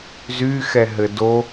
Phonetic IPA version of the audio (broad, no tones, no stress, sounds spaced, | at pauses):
z y x ɛ ɦ ɘ d o